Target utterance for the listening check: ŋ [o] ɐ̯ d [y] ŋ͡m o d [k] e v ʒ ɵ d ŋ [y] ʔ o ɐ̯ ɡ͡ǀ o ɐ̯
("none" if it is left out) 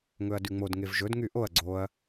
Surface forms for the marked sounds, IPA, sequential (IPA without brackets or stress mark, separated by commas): ɵ, y, ŋ, y